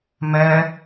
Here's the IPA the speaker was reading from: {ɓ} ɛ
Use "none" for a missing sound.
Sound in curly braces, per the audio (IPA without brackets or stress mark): m